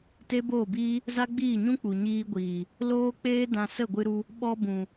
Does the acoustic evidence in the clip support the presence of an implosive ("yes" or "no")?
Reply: yes